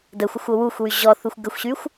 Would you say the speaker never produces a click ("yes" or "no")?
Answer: yes